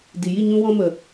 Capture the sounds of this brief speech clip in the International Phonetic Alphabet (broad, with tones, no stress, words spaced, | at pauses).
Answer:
di˨ji˦˨ ɲũ˧wɔ̃˧mə˨